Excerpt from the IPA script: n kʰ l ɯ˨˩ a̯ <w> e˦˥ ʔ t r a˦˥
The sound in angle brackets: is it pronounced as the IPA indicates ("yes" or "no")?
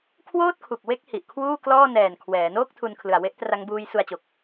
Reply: yes